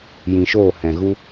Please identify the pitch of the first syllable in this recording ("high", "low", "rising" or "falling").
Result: low